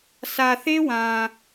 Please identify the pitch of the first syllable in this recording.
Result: low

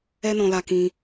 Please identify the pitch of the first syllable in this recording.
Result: high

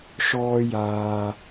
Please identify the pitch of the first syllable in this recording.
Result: low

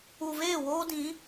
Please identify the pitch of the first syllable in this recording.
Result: low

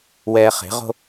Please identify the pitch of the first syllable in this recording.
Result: low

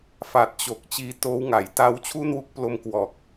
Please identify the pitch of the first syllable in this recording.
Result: low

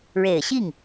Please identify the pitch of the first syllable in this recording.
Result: low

